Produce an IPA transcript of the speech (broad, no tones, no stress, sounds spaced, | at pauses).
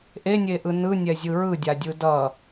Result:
ʔ e nʲ e ʔ ɯ n ɯ nʲ ɛ zʲ ɯ ɹ ɯ dʲ a dʲ ɯ d ʌ